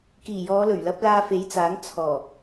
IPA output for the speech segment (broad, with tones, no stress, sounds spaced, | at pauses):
k iː˨˩ j ɔː˨˧ l ɵ˨˩ ɥ l ɐ˨˥ p̚ l aː˧ f e˨˥ j t͡s aː˨˥ ŋ t͡sʰ ɔː˨˩